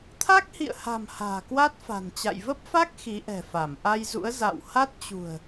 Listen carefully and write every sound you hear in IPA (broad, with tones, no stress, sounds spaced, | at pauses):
t̪ʰ a˦˥ k̚ h ḭ˧˨ ə̯ h a̤˨˩ m h a̤ː˨˩ k w a˦˥ t̚ f a̤˨˩ n t͡ɕ a̰˧˨ j v ə˦˥ p̚ f a˦˥ k̚ x i˨˦ ʔ ɛ̤˨˩ f a˧˩ m ʔ a˧ j z ṵ˧˥ ə̯ z a̰˧˨ w h a˦˥ t̚ t͡ɕ ṳ˨˩ ə̯